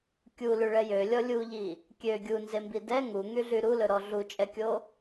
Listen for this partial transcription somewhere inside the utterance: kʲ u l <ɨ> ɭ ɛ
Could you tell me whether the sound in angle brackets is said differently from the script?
yes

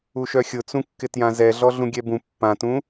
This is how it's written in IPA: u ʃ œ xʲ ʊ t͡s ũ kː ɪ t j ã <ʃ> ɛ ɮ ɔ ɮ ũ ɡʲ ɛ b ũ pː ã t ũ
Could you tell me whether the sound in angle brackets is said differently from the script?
yes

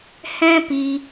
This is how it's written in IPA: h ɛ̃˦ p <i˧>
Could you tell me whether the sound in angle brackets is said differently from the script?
no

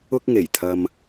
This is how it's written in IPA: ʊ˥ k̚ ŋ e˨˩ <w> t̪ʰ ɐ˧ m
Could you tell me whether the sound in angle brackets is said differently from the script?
yes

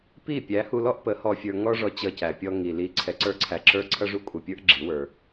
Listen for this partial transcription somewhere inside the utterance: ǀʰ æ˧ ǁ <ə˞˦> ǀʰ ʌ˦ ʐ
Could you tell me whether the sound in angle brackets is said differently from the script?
no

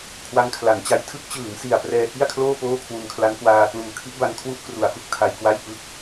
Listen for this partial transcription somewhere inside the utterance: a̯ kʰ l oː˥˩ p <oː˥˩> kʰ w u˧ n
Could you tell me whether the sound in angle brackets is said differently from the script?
no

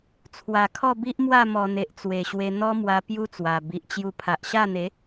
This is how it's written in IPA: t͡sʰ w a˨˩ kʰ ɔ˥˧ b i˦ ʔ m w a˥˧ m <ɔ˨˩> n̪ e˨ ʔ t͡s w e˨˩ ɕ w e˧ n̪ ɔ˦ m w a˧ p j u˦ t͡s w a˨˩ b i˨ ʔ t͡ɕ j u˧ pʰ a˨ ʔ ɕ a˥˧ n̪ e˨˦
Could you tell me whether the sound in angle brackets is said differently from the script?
no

